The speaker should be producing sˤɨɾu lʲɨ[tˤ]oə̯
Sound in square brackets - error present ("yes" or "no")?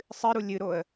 yes